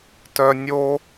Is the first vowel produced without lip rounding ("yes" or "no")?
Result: no